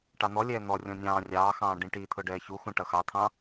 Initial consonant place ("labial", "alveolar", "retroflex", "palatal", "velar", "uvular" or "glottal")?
retroflex